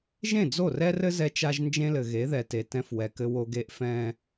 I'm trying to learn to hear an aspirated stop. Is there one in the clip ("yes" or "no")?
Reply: no